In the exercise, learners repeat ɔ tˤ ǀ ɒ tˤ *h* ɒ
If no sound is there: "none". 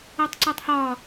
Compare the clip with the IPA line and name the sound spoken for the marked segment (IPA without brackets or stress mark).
h